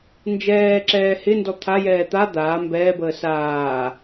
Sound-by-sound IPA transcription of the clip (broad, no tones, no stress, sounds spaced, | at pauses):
n d͡ʒ ɛː ǁ ɛː h ɪ n d ɔ t̪ʰ a j ɛː t̪ a d̪ aː m b ɛː b əː s aː